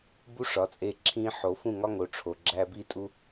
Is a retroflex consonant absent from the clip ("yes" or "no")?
no